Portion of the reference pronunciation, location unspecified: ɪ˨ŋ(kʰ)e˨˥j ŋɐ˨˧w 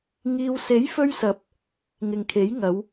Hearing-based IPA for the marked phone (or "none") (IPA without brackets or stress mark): kʰ